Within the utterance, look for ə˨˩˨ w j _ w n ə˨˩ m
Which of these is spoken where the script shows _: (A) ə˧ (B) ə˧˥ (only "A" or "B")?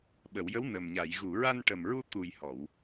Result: B